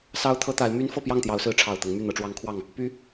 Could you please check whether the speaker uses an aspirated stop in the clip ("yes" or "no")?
yes